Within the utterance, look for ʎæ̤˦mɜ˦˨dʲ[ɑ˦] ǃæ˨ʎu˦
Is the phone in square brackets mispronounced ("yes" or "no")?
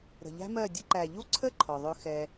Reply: yes